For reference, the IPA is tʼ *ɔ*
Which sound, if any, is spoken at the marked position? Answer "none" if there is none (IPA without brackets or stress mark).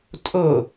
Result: o